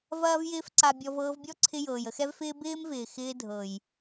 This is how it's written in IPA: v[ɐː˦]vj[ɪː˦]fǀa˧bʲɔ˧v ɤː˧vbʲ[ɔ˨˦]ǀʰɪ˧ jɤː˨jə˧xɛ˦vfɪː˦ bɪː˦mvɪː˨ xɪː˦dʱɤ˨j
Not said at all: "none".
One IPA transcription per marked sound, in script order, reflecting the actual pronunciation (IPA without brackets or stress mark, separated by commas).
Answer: ɐː˦, ɪː˦, ɔ˦